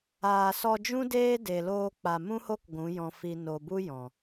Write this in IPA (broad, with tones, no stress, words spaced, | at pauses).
aː˨sɔ˧d͡ʒũ˦ deː˦ de˨loː˧k͡pa˨ mũ˦ho˦k ɡʷũ˨˦ jɔ̃˧fi˧ no˨bu˦ jɔ̃˨